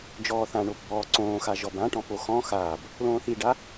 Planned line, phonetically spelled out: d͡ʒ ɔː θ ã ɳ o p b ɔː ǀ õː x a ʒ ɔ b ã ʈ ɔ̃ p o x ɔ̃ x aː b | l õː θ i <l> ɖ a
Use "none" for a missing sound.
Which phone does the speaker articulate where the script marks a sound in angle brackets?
none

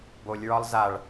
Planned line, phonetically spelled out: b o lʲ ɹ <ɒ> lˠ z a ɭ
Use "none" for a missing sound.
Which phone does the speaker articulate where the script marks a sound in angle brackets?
ɒ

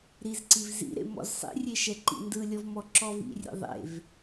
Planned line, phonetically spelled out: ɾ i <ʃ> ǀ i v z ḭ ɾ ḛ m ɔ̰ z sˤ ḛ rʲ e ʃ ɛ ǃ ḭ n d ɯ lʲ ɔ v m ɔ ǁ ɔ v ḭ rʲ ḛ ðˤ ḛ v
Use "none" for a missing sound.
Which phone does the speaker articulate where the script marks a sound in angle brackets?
z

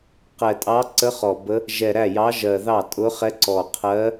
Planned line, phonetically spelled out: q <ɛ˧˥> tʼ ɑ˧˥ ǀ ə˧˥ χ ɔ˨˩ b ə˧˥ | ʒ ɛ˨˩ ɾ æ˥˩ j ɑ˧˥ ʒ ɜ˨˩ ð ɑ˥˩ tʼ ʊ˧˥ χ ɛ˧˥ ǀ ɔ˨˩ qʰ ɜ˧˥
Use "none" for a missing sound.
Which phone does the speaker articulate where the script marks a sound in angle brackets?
ɛ˨˩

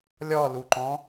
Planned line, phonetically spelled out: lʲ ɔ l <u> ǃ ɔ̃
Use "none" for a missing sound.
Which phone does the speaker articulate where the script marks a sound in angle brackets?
u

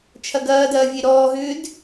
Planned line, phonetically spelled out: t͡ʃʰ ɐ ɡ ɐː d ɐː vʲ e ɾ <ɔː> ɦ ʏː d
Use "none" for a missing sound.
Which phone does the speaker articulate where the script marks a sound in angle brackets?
ɔː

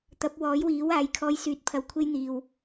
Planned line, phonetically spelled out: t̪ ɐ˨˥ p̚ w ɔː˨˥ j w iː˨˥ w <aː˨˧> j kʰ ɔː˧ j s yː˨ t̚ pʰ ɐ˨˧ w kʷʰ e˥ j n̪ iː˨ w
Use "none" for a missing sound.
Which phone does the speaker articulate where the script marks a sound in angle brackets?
aː˨˧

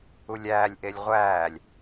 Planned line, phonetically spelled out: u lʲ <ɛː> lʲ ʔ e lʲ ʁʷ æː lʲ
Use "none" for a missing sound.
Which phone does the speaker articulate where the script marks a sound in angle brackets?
æː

